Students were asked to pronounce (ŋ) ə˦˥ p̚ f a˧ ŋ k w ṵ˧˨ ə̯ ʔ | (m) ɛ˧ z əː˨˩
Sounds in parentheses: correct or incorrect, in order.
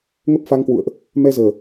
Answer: correct, correct

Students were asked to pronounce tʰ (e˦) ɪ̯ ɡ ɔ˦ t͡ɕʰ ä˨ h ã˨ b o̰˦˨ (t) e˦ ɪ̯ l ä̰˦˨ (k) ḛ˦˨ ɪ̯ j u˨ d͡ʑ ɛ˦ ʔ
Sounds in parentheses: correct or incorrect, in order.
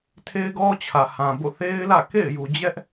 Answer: correct, incorrect: θ, correct

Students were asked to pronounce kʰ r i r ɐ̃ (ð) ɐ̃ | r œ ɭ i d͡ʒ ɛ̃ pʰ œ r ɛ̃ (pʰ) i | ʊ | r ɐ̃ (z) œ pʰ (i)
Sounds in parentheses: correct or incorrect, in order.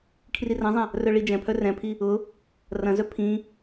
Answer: incorrect: zˤ, correct, correct, incorrect: ĩ

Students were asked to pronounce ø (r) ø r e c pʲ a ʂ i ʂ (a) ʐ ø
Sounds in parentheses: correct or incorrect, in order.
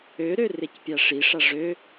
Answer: incorrect: ɾ, correct

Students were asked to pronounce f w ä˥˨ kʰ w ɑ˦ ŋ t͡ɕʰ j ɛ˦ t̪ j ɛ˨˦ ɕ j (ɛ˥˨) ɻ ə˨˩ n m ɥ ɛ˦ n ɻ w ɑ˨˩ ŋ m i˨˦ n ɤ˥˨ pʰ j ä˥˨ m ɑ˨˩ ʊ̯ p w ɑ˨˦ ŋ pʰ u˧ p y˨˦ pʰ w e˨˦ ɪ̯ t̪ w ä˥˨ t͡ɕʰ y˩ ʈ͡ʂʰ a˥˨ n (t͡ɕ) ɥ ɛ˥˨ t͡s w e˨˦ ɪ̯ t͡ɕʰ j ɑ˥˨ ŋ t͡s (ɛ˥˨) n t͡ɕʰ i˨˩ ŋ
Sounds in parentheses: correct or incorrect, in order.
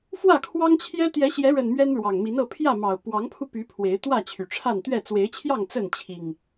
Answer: incorrect: ɛ˨˦, incorrect: t̪, incorrect: ə˥˨

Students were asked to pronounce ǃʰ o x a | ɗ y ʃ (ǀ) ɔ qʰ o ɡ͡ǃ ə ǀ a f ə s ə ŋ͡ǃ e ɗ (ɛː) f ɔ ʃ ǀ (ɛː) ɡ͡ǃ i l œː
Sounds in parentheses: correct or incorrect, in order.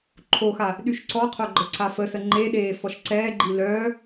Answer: correct, incorrect: eː, correct

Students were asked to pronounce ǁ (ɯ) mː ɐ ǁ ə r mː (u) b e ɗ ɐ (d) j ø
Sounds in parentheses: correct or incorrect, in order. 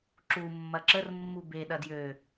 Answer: incorrect: u, correct, correct

